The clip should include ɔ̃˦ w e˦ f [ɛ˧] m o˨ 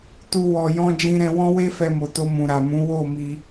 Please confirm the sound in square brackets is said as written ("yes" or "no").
yes